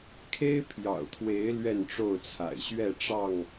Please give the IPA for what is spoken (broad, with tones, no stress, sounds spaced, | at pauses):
kʰ e˦ ɪ̯ pʰ j ɑ̰˨˩ ʊ̯ t̪ʰ w e˨˦ ɪ̯ l ɥ ɛ˥˨ n ʈ͡ʂ o˥˨ ʊ̯ t͡sʰ a̰˨˩ ɪ̯ ɕ ɥ ɛ˥˨ ʈ͡ʂ ɑ˥˨ ŋ